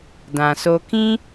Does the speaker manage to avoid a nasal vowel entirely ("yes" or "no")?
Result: no